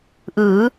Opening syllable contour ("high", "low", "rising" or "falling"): rising